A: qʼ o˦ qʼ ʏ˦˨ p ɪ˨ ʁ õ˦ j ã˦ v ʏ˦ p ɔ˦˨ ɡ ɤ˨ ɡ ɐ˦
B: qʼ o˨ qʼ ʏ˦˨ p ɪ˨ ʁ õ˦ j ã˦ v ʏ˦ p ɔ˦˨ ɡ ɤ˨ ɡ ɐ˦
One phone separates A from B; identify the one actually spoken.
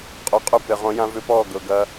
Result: B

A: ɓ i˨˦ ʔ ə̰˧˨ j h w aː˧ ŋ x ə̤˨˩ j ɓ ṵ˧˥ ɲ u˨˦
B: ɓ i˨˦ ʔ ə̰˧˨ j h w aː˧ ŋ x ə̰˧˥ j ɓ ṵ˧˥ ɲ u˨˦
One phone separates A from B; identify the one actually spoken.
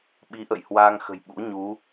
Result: A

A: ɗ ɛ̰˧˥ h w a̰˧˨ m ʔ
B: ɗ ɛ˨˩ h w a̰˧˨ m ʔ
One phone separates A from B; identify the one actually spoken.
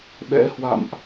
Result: A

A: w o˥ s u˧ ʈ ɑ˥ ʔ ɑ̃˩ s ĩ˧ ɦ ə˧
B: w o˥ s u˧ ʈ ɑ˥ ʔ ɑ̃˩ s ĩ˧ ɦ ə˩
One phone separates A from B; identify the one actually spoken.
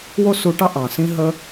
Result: A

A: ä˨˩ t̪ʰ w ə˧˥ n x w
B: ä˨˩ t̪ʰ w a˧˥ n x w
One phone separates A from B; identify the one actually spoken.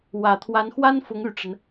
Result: B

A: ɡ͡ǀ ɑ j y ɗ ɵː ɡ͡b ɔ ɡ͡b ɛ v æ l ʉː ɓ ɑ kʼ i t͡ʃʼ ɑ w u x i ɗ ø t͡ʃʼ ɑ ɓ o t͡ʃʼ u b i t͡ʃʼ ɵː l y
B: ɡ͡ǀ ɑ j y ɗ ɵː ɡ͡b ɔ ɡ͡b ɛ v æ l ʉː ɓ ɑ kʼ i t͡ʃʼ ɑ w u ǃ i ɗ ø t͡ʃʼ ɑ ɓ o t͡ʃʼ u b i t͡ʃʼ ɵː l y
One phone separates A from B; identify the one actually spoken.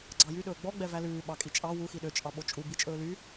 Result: A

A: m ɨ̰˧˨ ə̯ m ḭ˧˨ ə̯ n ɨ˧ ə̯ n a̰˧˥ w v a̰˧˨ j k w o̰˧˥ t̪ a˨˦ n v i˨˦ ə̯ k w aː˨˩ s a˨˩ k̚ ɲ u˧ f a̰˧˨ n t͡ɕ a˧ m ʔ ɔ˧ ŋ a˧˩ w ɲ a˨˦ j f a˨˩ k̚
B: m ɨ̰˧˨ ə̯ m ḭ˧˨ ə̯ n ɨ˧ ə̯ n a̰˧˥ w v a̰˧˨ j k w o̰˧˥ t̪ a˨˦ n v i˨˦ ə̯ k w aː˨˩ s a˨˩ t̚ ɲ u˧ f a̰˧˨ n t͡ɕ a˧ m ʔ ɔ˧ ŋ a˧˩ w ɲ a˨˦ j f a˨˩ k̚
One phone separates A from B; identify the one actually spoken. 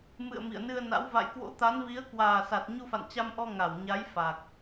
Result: B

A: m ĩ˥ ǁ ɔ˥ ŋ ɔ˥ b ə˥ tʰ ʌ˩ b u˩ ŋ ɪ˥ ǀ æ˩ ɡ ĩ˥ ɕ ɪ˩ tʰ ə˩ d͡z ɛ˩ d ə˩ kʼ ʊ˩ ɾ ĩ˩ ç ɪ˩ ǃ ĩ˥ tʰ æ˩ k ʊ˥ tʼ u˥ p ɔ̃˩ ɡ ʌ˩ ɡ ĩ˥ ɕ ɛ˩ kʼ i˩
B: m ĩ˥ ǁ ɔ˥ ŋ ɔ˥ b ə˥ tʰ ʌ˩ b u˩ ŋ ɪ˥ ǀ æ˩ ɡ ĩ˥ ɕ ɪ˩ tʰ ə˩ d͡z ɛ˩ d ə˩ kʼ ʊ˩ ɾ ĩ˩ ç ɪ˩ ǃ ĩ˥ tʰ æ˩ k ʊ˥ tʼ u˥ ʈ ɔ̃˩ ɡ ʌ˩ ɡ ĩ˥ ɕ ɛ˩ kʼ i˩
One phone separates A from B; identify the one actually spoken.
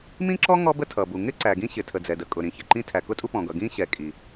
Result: A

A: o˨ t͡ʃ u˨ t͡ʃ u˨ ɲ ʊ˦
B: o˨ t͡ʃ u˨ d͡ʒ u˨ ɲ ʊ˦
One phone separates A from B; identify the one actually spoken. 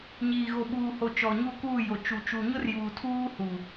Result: A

